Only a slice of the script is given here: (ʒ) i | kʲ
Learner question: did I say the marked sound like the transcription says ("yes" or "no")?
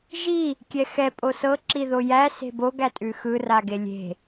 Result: yes